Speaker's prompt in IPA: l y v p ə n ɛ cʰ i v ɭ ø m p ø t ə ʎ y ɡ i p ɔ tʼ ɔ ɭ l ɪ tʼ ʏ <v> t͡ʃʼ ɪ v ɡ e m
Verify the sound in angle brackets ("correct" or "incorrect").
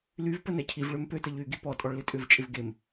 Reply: correct